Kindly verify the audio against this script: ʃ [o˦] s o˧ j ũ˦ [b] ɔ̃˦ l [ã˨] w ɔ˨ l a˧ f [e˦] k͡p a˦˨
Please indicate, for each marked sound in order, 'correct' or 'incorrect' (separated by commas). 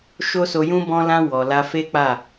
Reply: correct, correct, incorrect, correct